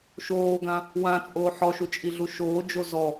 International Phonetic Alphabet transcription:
ʃ oː ɡ ã | w ã t͡sʼ oː ħ ɔ ʃ u t͡ʃʼ i ɮ u ʃ oː d͡ʒ o z ɔ

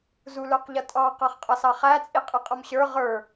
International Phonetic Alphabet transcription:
z u l ə˞ q ʎ ʌ tʼ ɑ q ɑ χ qʼ ʌ s ɑ χ æ t͡sʼ i qʼ i qʼ ʌ m ɕ ə˞ ʁ ə˞

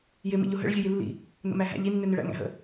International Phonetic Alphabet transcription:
j ɪ m ḭ ʎ ʊ ɦ ə̰ ɭ zʲ ʊ j i lː ḭ | n ə̰ m æ ɦ æ̰ ʎ i nː ɪ n ɪ ɭ æ̰ ŋ æ̰ ɦ ə̰

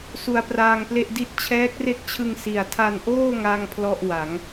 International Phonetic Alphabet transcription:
s u˧ a̯ p r aː˧ ŋ p l e˥˩ ʔ d i˥˩ t̚ t͡ɕʰ ɛː˦˥ k̚ r e˥˩ k̚ t͡ɕʰ ɯ˧ ŋ s i˨˩ a̯ tʰ a˧ n ʔ oː˥˩ ŋ a˥˩ ŋ pʰ l ɔ˥˩ ʔ w a˩˦ ŋ

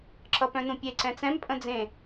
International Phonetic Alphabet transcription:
ǁ ʌ p œ̃ n ũ pʲ e ǀ ɛ̃ t͡s ɛ̃ m pʼ ə̃ d͡z ẽ

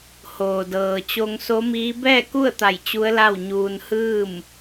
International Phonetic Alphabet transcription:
h oː˩ d ɤː˩ t͡ɕ o˧ ŋ s o˧˥ m iː˧˥ b ɛː˥˨ k u˥˨ ə̯ t̪ a˧˩ j t͡ɕ u˧˥ ə̯ l a˥˨ w ɲ uː˧ n h ɯː˥˨ m

